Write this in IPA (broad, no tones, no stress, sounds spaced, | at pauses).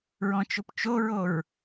ɹ ɔ̃ t͡ʃ o p t͡ʃ o ɹ o ɹ